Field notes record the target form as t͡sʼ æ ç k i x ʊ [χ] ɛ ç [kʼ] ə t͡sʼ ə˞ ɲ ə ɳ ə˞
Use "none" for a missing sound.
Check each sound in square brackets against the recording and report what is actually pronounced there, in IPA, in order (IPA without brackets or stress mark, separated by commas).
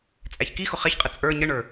χ, qʼ